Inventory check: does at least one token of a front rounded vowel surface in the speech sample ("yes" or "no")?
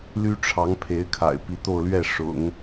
yes